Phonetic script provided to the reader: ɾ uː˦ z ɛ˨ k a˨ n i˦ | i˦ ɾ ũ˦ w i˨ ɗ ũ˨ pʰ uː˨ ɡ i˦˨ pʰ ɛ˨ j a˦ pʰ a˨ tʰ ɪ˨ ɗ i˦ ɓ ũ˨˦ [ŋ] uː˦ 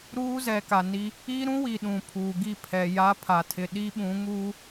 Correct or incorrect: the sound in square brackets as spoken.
correct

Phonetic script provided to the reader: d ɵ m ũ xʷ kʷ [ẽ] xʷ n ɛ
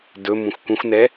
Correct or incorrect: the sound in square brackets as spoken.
incorrect: ĩ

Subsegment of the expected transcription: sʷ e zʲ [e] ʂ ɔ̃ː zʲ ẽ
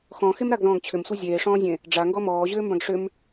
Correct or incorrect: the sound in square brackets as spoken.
incorrect: eː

